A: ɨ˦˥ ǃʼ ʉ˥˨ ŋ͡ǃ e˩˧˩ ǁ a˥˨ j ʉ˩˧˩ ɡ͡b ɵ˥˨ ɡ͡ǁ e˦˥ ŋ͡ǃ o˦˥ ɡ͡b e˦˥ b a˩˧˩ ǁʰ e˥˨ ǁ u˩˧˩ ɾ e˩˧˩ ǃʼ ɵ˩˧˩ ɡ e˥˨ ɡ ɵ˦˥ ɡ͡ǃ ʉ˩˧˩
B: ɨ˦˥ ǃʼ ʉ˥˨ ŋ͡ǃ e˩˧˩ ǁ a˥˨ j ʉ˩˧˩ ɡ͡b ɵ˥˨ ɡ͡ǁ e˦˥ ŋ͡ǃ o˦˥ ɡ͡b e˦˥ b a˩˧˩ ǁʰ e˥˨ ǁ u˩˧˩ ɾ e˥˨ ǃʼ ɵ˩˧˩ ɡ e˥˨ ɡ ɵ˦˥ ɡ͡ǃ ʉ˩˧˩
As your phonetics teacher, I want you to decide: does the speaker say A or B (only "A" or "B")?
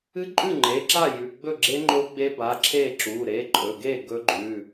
A